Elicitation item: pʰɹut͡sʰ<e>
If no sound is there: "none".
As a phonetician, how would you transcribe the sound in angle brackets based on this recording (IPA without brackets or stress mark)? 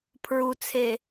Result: e